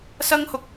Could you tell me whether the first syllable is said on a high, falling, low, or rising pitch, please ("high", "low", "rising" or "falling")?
high